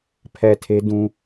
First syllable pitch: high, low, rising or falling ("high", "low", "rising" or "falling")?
low